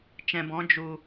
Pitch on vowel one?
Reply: low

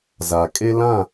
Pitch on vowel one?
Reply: low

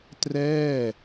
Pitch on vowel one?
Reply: falling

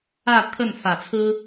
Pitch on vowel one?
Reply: falling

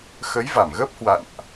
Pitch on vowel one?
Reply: rising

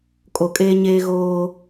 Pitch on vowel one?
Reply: low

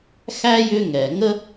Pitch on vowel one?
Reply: high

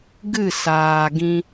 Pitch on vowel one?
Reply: falling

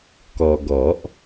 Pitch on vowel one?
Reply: low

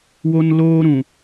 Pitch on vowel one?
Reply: high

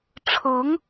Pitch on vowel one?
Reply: rising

